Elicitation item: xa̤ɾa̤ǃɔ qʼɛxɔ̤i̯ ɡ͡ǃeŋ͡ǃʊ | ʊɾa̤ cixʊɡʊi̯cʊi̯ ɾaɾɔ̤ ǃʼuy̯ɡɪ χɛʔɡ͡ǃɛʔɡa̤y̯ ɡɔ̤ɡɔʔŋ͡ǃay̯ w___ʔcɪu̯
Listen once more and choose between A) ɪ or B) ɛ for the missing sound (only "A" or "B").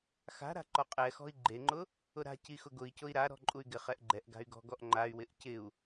A